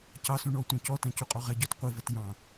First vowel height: low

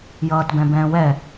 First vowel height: mid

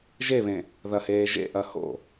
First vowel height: mid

